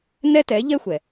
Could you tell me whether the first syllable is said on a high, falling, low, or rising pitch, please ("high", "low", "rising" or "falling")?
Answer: high